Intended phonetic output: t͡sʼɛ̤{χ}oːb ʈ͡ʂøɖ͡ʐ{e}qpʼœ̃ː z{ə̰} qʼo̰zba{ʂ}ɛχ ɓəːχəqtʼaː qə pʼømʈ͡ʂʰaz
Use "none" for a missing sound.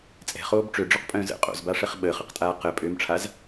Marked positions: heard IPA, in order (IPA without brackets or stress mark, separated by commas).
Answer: χ, ø, ə̰, ʂ